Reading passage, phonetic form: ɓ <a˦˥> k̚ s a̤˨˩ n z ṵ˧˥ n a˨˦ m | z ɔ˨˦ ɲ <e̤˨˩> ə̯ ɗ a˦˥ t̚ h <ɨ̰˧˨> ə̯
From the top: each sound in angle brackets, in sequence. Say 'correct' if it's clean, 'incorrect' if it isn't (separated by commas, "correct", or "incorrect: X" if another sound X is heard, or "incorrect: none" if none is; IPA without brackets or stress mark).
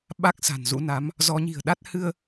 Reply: correct, incorrect: i̤˨˩, incorrect: ɨ˧